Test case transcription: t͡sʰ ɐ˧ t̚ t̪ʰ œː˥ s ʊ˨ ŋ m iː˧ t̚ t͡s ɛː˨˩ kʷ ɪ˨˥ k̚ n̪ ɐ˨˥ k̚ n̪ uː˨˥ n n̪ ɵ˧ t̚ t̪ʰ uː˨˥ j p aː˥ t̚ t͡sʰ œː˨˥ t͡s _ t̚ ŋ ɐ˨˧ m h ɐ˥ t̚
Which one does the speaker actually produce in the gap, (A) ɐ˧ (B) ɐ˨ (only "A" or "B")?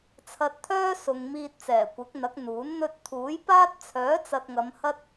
B